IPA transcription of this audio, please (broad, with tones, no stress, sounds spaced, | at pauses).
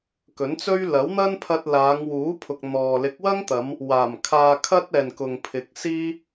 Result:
k ɵ˨˥ n t͡s ɵ˥ ɥ l ɐ˨˥ w n̪ ɐ˥ n pʰ ɐ˧ t̚ l aː˨˧ ŋ w uː˨˥ pʰ ʊ˨ k̚ n̪ ɔː˨ l ɪ˨˥ k̚ w ɐ˥ ŋ t̪ ɐ˨˧ m | w aː˨˩ m kʰ aː˧ kʰ ɐ˥ t̚ ɛː˨ n k ʊ˨ ŋ pʰ ɪ˨ k̚ s iː˥